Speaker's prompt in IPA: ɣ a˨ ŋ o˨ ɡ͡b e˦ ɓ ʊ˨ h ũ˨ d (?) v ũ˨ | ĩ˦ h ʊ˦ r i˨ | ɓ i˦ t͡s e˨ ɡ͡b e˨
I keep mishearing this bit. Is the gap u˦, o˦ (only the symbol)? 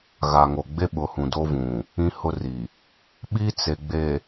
o˦